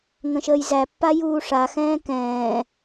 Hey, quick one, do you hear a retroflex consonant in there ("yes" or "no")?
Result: yes